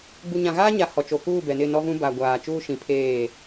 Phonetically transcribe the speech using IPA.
ɡ͡b u˨ ɲ ã˨ ɣ aː˦ ɲ a˨ h ɔ˨ t͡ʃ o˨ k uː˦˨ b ɛ˨ n ɪ˦˨ n ɔ˦ v ũ˦ b a˨ ɡʷ aː˨ t͡ʃ uː˦ ʃ ĩ˨˦ pʰ eː˦˨

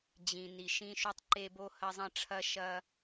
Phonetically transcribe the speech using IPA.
d͡ʑ ĩ˩ n i˩ ʃ ĩ˧ ʃ u˧ tˤ ǃ e˧ b o˧ h ɐ˧ zˤ ɐ̃˧ ʈ͡ʂʰ ɐ˧ ʃ ɐ˧

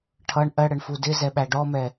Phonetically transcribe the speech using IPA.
ʈʰ ʌ ɳ ʔ ɜ ɽ ə ɳ f u d ɪ z ɛ ɓ æ ɖ ɔ m ɛ

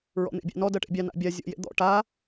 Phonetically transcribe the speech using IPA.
ɹ ɔ̰ n̪ ḛ bʲ ɑ̰ n ɔ d ɜ ʈ ḛ bʲ ɑ n a̰ bʲ a zʲ ɔ̰ j ḛ d̪ ɔ̰ ʈ a

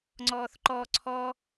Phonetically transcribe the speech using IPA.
ŋ͡ǀ ɔː θ ǃ ɔ ǀʰ ɔ

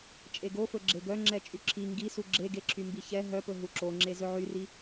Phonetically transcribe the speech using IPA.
t͡ʃʼ e ɡ o f ɵ ɡ͡ǁ e ɡ œ ŋ͡ǁ ɛ t͡ʃʼ y ǁʰ i ŋ ɡ i s u ɡ͡ǁ e ɡ e ǁʰ y m b i ç ɛ ɦ œ p ɵ ɦ u ǁ o ŋ͡ǁ e z ɵ ʕ y r i

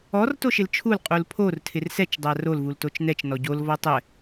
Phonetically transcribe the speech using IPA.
ɔ r t o ʃ ɪ l t͡ʃʰ u l qʼ u l pʰ o r tʰ ɪ r s ɛ t͡ʃ dˤ a r o l v u l t o t͡ʃ n ɛ t͡ʃ n ɔ ɟ o l v ɔ tˤ ɛ

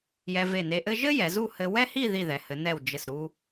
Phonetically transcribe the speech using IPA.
j ɛ˧ v e˧˩ n e˧ ʔ ɘ˥ ʒ ɘ˥ j ɛ˩˧ z u˥˧ h ɘ˧ w ɛ˥ h i˥˧ ð i˧˩ ð ɛ˩˧ h ɘ˩˧ n ɛ˧˩ w d͡ʒ ɘ˧˩ s ɾ u˧

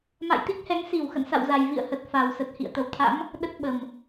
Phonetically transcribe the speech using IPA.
m a̰˧˨ j t̪ i˦˥ k̚ h ɛ˨˦ ŋ s i˧˩ w x ə̰˧˨ n s a̰˧˨ w z a˨˩ j v ḭ˧˨ ə̯ h ə˨˩ t̚ f a˨˩ w s ə˨˩ t̚ h ḭ˧˨ ə̯ t̪ ə˧˩ w t̪ʰ a̰˧˥ m | ɗ ə˦˥ t̚ ɓ ə˨˩ m

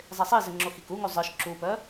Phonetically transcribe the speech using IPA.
zˤ e sˤ i z ɘ ŋ͡ǁ o x i k u ŋ u zˤ ə˞ ʃ ǁ u p œ

